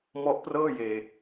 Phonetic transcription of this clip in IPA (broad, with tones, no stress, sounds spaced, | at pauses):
m ɔ˦˥ ʔ p r ɤː˥˩ j eː˨˩